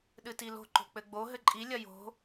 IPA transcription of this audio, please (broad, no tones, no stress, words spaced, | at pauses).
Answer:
ɗɨtilo̤ ǃo̤k͡pɘɡ͡bo ɦɘǃʼi lʲɐjo̤